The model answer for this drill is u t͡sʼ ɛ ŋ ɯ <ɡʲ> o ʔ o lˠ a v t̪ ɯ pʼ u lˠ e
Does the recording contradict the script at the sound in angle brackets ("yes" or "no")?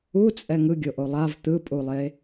no